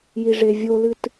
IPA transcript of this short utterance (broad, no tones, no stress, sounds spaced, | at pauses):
j i ʐ e vʲ o l ɨ t